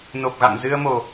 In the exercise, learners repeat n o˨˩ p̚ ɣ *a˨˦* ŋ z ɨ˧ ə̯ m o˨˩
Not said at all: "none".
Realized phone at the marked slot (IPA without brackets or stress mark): a̰˧˨